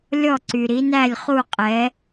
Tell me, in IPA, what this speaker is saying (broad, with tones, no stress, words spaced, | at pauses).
lʲɔ˥˨ǀy˨ɾi˨˥næ˥˨lʲ χu˥˨qʼɛ˨˥